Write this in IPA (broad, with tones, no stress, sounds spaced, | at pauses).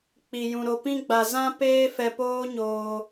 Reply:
k͡p i˨ j ũ˨ ɾ o˨ p ĩ˧ ɡ͡b a˨ z ã˧ p eː˦ f ɛ˧ p oː˦ ɲ oː˧